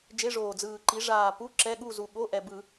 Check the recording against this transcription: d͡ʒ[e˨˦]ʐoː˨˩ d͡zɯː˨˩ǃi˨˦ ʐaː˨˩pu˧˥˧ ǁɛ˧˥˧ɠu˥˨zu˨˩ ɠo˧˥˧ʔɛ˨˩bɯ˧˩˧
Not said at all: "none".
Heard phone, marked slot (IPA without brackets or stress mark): e˧˥˧